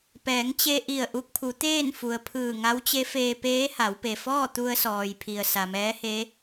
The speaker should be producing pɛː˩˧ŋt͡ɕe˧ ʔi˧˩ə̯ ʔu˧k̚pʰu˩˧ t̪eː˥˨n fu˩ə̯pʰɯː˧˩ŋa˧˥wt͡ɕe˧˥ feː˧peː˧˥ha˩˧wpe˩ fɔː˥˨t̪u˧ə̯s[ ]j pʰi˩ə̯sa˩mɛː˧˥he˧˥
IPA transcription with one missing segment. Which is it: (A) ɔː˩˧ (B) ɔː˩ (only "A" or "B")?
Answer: B